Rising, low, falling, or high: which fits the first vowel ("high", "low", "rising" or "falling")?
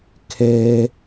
low